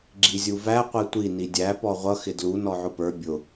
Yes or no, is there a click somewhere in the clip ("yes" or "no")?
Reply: yes